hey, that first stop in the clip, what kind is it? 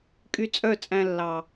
ejective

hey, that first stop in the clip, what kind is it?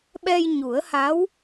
implosive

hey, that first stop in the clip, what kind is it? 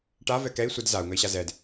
plain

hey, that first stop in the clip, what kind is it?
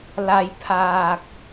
aspirated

